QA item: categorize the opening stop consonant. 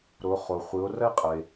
ejective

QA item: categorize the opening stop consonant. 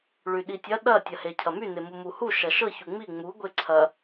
implosive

